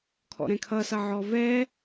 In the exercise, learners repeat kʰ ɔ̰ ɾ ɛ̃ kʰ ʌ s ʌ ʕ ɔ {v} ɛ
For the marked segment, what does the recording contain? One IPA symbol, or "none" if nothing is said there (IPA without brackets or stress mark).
v